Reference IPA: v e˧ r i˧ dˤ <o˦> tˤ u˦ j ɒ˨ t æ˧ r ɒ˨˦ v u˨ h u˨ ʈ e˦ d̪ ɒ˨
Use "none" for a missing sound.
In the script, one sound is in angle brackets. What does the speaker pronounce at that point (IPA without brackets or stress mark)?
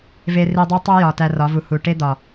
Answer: o˦